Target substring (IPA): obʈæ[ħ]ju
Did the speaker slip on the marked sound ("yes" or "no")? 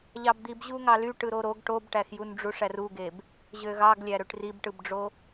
yes